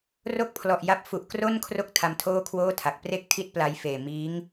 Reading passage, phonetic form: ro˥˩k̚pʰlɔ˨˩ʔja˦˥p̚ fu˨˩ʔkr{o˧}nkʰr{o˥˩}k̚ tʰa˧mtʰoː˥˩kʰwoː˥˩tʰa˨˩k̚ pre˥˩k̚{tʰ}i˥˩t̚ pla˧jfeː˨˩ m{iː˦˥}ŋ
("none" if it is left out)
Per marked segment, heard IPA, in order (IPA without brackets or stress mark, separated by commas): o˥˩, o˦˥, tʰ, iː˦˥